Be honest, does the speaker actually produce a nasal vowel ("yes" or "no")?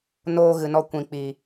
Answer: yes